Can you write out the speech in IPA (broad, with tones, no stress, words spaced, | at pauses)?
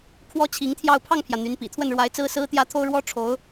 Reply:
kʰwɔ˥t͡ɕʰi˧˥ŋt̪ʰjɑ˥˧ʊ̯ pʰɑ˥˩ŋpʰjä˩ n̪y˧˥npḭ˨˩ t̪ʰwə˥˩nɻwa˧˥ɪ̯ t͡sɹ̩˥ sɹ̩˥ t̪jä˥t̪ʰo˥ʊ̯ ɻwɔ˥ʈ͡ʂʰo˧˥ʊ̯